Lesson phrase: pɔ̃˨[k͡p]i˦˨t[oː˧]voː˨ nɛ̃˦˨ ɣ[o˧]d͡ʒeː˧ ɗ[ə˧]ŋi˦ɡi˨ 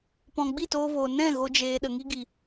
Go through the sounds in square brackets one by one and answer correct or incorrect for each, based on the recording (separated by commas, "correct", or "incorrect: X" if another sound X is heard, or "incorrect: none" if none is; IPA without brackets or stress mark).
incorrect: ɡ͡b, correct, incorrect: o˦, incorrect: ə˨